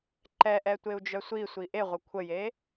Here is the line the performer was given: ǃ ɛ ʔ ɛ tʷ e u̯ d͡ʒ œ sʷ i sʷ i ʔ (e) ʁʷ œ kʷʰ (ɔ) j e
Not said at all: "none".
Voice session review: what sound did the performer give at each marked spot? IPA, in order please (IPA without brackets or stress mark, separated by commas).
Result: e, ə